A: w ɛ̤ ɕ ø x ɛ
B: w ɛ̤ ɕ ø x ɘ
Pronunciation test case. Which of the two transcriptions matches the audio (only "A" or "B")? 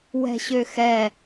A